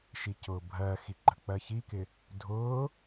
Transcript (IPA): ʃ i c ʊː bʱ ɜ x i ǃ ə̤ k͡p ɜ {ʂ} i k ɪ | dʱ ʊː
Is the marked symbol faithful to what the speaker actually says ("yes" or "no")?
no